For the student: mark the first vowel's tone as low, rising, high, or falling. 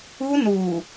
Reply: high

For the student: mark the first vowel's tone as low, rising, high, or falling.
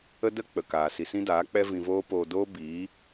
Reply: high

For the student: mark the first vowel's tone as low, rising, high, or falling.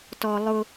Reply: high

